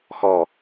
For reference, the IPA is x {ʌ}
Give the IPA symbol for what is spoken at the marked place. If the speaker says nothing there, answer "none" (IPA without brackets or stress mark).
ɔ